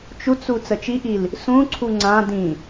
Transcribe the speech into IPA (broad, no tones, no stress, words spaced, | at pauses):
t͡ʃut͡su t͡sət͡ʃiʔil | sũǀʰu ŋ͡ǀã dĩ